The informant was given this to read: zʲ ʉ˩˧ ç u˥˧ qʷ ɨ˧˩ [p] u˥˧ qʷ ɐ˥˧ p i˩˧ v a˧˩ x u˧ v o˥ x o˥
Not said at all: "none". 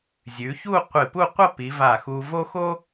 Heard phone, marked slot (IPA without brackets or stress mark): p